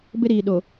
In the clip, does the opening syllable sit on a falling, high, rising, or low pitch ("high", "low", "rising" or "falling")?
high